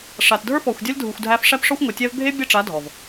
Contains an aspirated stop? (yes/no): no